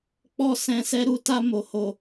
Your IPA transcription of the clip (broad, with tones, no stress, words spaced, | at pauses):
k͡pɔ˦ sɛ̃˧sɛ˦ ɾu˧ta˧ mo˨ho˨